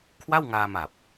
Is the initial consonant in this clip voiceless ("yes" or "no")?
yes